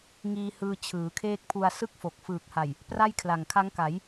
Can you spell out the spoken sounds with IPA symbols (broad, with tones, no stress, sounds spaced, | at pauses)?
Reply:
ŋ iː˧ h ɯː˧ t͡ɕʰ ɯː˩˦ kʰ eː˦˥ k̚ pʰ u˧ a̯ s ɯ˥˩ k̚ f o˨˩ k̚ f ɯː˨˩ k̚ h a˨˩ j | p r a˥˩ j kʰ l a˨˩ ŋ kʰ a˦˥ ŋ k a˩˦ j